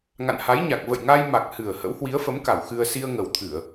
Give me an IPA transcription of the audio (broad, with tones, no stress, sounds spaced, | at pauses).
ŋ a̰˧˨ n h a˨˦ j ɲ a˨˩ k̚ v ə̰˧˨ j ŋ a˧ j m a˨˩ k̚ h ɨ˨˩ ə̯ h ə̰˧˥ w h w i˨˦ ə̯ f ə˨˦ m k a˧˩ w x ɨ˧ ə̯ s i˧ ə̯ ŋ ə˨˩ w t̪ʰ ɨ˧˩˨ ə̯